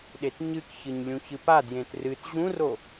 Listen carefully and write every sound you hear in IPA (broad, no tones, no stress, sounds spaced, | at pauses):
ɗ e t ɲ ɨ k ç ɨ ɲ lʲ ũ ç ɨ p a d j ẽ t r ɨ t ʑ ũ r o